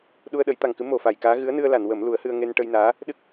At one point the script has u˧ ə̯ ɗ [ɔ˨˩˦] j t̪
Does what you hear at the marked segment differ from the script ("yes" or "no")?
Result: yes